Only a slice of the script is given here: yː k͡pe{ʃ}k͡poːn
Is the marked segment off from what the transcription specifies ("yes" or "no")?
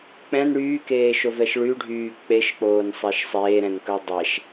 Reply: no